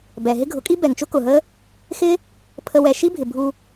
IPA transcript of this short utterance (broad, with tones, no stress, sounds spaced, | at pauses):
b ɛ˨ ɦ ɪ˦ ɡʱ ʊ˨˦ kʼ i˦ b ɛ˨ ŋ t͡ʃ ʊ˦ k ʊ˨ ɦ ə˦ | x ɪ˦ | pʰ ə˧ w ɛ˨ ʃ i˦ bʱ ɪ˨ bʱ u˧